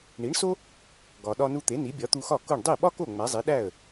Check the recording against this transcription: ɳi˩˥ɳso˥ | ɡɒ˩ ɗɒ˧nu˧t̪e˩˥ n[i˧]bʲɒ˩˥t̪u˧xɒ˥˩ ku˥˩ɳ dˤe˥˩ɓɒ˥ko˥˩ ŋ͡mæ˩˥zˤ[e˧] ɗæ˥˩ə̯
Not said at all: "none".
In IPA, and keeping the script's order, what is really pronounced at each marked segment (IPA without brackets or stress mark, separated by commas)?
i˩˥, e˩˥